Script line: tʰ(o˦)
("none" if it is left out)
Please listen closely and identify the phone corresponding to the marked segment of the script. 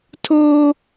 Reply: oː˦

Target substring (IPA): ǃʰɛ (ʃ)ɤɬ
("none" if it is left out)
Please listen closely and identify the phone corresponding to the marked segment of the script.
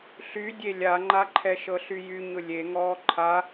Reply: ʃ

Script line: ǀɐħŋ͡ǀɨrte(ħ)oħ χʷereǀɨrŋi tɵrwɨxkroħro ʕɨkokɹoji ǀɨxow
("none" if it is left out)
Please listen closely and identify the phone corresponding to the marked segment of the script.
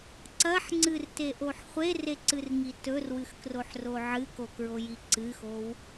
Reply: ʔ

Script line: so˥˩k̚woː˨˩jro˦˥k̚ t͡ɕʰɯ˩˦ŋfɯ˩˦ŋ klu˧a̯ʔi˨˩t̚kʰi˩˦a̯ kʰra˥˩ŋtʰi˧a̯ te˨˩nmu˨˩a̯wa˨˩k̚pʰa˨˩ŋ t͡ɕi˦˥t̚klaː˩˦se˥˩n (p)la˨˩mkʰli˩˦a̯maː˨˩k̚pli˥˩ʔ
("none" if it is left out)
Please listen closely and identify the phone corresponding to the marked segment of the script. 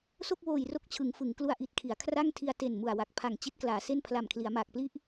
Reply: pʰ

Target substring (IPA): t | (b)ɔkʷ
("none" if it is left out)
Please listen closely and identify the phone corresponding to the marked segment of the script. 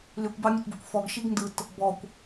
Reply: b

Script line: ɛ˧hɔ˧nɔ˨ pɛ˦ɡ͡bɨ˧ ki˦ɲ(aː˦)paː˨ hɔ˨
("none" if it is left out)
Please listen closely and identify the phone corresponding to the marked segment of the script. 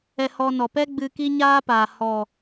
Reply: aː˦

